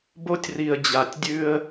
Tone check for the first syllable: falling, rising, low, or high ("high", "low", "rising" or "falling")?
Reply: high